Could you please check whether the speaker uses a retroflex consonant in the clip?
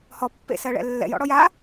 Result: yes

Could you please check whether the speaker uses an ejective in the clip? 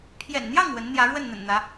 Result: no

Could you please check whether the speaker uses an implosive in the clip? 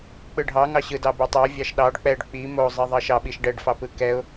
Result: yes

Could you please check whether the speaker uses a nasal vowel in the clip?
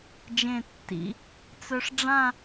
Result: yes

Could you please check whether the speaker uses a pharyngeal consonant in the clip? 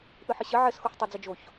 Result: yes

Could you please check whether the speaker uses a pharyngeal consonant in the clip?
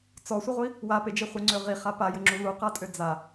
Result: no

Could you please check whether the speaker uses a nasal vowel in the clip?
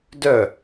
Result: no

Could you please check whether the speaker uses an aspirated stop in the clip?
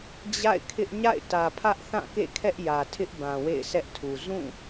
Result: yes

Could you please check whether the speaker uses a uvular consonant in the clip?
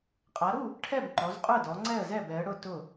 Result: yes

